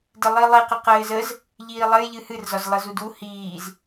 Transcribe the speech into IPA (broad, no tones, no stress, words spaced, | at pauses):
dɘlˠilˠi qɘqɘːzəz | ʎiːlˠɘj ʎɨhɨr zɒzlˠɘzudu hiːz